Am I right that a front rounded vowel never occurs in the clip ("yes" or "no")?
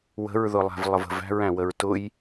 yes